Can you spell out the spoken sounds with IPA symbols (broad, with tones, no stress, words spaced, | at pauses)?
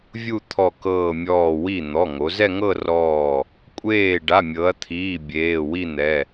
vʲu˥˧t̪ʰɔ˧˩kɤː˧˩ mʲɔː˧˩wi˥˩ n̪ɔ˩˧˩ŋo˩˧zɛ˥˧ŋɤ˥˧ rɔː˥˩ | kʷʼeː˥˩ ɖa˩˧˩mʲɤ˩˧ɐ̯t̪ʰiː˩˧˩ bʲeː˩˧˩wi˥˧n̪ɛ˩˧˩